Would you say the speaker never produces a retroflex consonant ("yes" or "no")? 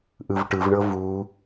no